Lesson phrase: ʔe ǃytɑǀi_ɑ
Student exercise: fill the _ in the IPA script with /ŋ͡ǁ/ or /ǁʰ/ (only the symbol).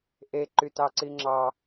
ŋ͡ǁ